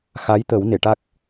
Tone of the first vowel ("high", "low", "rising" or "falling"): rising